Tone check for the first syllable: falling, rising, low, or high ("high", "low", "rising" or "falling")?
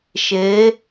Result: rising